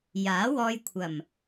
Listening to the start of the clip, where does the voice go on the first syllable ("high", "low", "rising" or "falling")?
rising